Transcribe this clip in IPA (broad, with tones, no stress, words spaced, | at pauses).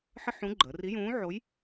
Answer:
ħə˥ħũ˧˥ ɡ͡ǃəː˩˧ri˧˥jũː˧˥ʕo˧˥j